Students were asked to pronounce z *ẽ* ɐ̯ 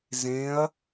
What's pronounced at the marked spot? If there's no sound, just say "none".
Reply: ẽ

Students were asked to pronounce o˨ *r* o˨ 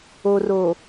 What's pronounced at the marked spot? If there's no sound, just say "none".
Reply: r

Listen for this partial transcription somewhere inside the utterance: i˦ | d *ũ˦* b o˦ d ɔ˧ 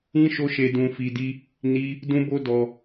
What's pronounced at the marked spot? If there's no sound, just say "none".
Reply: ũ˦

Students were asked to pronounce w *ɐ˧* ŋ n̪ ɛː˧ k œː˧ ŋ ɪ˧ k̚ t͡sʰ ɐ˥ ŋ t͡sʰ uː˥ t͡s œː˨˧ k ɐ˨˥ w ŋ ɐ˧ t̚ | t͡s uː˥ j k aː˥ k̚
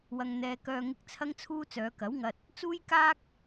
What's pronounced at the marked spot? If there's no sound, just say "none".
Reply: ɐ˧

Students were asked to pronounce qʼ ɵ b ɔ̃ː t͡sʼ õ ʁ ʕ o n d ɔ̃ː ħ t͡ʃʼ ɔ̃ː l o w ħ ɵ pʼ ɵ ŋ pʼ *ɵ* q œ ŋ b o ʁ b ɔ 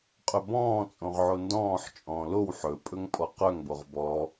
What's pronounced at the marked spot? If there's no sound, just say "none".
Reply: ɔ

